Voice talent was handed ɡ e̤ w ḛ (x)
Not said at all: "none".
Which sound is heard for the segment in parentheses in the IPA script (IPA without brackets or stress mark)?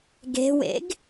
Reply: ɡ